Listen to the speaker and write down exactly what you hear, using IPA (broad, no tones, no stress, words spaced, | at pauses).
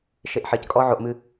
ʃeʔħɘckʼɔ ʕoʔmɨ